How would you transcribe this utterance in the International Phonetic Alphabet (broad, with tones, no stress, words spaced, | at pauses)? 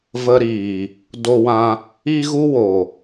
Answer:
və˧ɾiː˨ | do˧wã˧ | i˧ɣu˧ wo˨